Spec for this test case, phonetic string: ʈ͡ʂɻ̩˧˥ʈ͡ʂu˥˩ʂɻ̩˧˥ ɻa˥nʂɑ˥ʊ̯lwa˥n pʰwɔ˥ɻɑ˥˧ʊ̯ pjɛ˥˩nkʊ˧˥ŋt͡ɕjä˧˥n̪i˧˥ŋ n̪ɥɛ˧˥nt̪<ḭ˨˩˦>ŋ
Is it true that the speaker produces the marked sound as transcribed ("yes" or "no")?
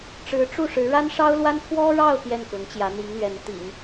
yes